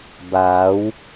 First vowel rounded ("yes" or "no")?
no